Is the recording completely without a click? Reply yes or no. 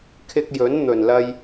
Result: yes